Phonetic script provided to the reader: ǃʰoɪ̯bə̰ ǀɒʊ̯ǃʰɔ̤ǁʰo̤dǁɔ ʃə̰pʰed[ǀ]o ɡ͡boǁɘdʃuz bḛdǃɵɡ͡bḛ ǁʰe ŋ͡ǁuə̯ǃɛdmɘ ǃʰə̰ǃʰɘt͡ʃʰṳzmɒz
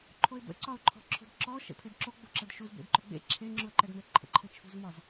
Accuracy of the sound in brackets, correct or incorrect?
incorrect